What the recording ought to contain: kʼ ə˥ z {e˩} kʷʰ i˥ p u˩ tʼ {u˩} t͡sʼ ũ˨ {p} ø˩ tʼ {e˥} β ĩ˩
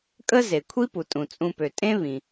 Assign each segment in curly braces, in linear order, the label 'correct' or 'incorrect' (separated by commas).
correct, incorrect, correct, incorrect